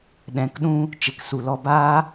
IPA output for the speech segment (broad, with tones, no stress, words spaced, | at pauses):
ɗɛ̃˨kɗũ˧ | t͡ʃe˨ksu˨lɔ˧ baː˦